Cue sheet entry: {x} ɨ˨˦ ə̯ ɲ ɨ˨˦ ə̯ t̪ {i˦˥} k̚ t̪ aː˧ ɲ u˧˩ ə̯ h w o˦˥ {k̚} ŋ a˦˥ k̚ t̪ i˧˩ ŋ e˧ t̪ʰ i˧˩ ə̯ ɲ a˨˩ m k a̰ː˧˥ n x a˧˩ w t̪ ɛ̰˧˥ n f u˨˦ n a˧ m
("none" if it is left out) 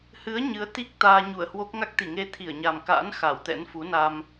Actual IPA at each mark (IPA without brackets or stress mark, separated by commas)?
h, i˦˥, k̚